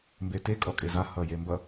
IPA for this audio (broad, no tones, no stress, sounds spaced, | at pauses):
m b e t e kʼ ɔ kʼ e z a h ʌ j e m b ʌ